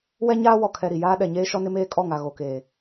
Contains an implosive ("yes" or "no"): yes